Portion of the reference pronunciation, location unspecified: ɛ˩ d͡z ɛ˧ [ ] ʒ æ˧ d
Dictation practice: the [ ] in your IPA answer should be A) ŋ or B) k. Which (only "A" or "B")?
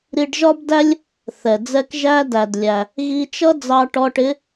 B